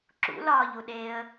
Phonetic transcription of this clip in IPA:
ǁ ṵ l ɒː ʎ u ɗ eː ə̯

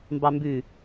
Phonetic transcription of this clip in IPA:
m b ɑ m b ʉ

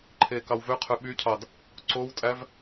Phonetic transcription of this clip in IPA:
ǃʰ eː k ɑ w v ø qʰ ø ɓ y cʰ ɑ d | ǀ o w tʼ æ v

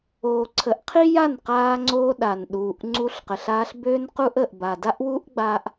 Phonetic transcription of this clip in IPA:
oː˨ ǀʰ ə˨˦ ʔ qʰ i˦ j a˦˨ n q aː˧ ŋ͡ǀ oː˧ ɗ a˨ n ɗ uː˨ ʔ ŋ͡ǀ u˧ ɬ q ə˨ ɬ aː˧ ɬ b øː˦ n q u˦ ʔ ə˨ ʔ b a˨ d a˦ ʔ w uː˦ ʔ ɡ͡b a˦ ʔ

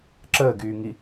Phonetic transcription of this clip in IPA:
ǁ əː ɡ yː ŋ i

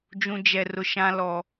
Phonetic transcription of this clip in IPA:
d͡ʒ ũ˦ d͡ʒ ɛ˦ r ʊ˦ ʃ ã˦ l ɔ˦

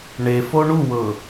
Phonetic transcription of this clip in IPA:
ɳ e f o ɳ u w ɤ

